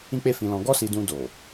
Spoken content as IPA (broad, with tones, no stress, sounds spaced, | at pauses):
ĩ˦ k͡p e˦ f ĩ˧ l ɔ̃˧ ɡ ɔ˦ s i˧ d ũ˧ d o˨